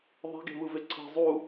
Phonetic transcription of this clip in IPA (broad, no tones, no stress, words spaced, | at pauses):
ðˤe̤ɡe̤vɯve ǀʰe̤ zˤu